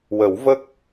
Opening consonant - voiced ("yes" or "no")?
yes